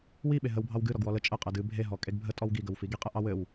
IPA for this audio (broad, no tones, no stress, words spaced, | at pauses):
wiɓe ɦəwbʱɑw ɡɨ ɾɔɡwɔlə t͡ʃʼə qʼɘdɨ bʱeɦɔ kʼeɡbʱə tʼɔwɡiɡəw fiɡi qʼɘʔɑwɘw